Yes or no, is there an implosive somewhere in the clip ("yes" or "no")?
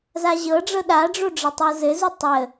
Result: yes